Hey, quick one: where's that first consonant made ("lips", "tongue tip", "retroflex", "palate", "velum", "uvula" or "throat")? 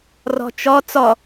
tongue tip